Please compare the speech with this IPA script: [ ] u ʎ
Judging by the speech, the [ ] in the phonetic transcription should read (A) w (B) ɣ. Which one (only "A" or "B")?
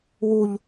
A